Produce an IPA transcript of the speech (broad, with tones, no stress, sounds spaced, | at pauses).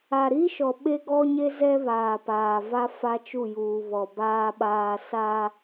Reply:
a˨ ɾ i˦ ʃ ɔ˨ ɓ e˦ ɡ ɔ˦ ɲ e˦ z ɛ˦ β aː˨ p aː˨ v a˦ f a˦ t͡ʃ u˦˨ j uː˨ β ɔ˨ b aː˦ ɓ aː˦ s a˦